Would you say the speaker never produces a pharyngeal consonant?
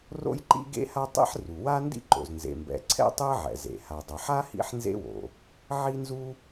no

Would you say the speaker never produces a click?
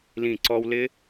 no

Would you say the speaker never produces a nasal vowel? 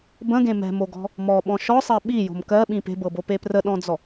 no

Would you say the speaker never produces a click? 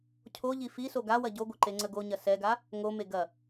no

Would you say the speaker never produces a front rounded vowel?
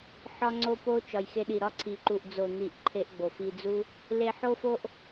yes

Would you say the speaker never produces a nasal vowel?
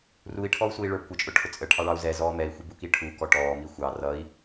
yes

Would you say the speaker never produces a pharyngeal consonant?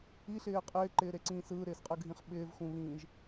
yes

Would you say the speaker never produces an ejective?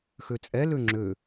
no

